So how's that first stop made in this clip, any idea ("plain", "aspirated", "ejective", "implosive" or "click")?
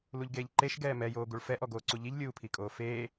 plain